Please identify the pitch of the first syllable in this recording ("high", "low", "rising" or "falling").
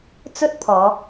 high